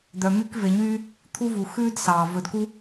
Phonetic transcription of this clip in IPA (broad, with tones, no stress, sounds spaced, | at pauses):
d̪ œ˨ m y˥ k v e˨ ɲ yː˦ | t̪ʰ u˦ v u˩ x ʉː˥ d s ɑː˩ v ɵ˨ d k u˥